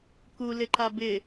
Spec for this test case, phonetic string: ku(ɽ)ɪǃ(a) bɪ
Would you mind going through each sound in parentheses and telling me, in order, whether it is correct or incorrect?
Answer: incorrect: l, correct

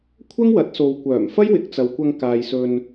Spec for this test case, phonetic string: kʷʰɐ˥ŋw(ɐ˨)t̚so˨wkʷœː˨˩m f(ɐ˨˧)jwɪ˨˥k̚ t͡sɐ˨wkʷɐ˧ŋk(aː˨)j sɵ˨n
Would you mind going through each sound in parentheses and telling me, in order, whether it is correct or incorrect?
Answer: incorrect: ɐ˨˥, incorrect: ɐ˥, correct

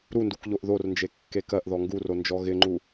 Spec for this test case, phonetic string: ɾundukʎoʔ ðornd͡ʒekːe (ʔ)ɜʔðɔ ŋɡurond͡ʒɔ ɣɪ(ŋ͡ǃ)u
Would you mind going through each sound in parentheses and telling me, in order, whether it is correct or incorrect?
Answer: incorrect: k, correct

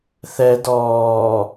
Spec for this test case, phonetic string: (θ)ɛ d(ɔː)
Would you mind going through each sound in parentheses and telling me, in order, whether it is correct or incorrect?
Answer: correct, correct

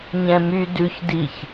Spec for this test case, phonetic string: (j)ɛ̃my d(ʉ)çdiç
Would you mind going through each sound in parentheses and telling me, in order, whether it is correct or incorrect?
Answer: incorrect: ɲ, correct

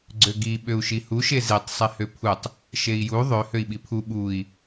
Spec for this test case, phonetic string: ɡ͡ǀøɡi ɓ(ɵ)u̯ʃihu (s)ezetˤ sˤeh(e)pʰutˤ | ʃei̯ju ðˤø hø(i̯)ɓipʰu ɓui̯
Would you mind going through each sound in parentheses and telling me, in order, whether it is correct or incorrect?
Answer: incorrect: ø, incorrect: ʃ, incorrect: ø, correct

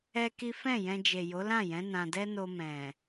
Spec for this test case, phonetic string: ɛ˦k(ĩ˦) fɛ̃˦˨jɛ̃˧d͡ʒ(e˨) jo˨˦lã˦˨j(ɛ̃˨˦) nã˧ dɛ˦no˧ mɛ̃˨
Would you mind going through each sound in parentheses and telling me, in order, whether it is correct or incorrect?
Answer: incorrect: i˦, correct, correct

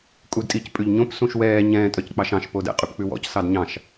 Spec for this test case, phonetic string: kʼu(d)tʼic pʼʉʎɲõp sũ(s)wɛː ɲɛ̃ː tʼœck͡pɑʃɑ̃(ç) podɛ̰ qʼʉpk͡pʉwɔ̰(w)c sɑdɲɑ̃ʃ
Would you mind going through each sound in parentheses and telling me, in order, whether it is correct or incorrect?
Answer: correct, incorrect: ʃ, incorrect: ʃ, incorrect: none

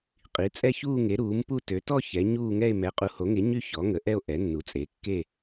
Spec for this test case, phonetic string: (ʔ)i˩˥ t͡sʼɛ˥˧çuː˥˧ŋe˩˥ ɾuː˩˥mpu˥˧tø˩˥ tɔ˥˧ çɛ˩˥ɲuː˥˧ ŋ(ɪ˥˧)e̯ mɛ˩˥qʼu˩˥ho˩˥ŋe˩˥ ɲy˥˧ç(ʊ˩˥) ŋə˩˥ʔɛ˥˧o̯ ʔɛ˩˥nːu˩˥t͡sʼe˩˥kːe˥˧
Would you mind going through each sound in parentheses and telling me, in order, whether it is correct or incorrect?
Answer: incorrect: qʼ, incorrect: ɛ˥˧, incorrect: ɔ˩˥

